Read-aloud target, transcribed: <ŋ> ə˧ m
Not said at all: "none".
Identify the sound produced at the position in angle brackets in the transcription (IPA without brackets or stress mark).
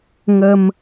ŋ